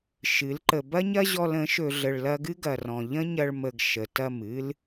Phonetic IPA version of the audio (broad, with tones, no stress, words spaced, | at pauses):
ʃɨ˨˦lǃə˧ bɐ˦ɲɐ˦ʑɔ˧l ə̃˨˦ʃɵ˧ ɮə˧ɭlɐ˦ ɡɨ˦ɡɐ˨rɔ̃˨ ʎə̃˦ɲɐ˧ɭ mə˧ɡ ʃə˨tɐ˦˨mɨ˦l